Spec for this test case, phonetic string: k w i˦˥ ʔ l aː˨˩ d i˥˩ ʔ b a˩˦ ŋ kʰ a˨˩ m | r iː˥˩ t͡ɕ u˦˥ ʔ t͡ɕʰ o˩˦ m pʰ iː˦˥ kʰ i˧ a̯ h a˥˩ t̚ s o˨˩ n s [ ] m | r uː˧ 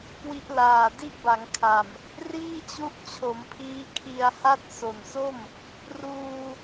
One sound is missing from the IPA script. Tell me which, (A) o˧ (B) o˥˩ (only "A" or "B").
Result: B